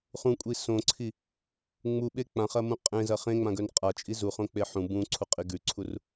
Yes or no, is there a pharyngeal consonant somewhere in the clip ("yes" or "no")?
yes